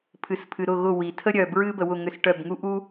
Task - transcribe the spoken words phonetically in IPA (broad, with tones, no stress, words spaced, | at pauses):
pʰɨ˩spʰɨ˩ɾʊ˧˩ɣʊ˧˩ wi˩tʰə˥ ɾʲœ˩bɹɨ˥ bə˩wʊ˧˩ŋʏ˧˩s ʈœ˧˩bŋu˥ʔu˥